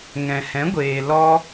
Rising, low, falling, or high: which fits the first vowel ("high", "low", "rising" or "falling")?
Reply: low